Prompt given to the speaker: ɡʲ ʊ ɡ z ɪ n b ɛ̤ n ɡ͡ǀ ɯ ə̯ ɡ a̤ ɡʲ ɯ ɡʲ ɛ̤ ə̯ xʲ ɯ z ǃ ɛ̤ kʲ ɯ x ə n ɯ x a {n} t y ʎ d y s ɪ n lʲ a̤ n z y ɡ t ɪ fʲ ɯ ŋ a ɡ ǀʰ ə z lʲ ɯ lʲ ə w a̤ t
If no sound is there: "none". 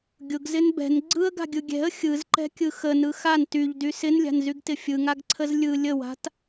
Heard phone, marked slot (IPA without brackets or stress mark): n